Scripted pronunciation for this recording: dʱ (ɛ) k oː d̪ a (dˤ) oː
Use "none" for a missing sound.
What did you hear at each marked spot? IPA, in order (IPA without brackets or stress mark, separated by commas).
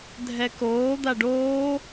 ɛ, ɖ